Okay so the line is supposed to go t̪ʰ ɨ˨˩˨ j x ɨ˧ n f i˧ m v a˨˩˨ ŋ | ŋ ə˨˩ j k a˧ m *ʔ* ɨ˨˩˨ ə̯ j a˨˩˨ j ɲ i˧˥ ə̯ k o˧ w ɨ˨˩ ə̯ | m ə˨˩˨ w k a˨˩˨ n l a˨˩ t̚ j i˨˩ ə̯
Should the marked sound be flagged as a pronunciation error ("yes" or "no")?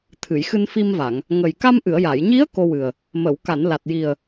no